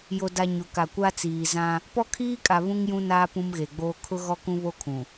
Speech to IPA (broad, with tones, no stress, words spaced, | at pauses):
jo˨da˨ ɲʊ˨ka˨kʷa˦t͡siː˨ zã˦ | pɔ˦kʰiː˦kʼa˨ βũ˦ŋjũ˦naː˦ pũ˦mɣe˨ɡ͡boː˦ kʰʊ˦ɣɔ˦ kũ˦βo˦ kʰũ˨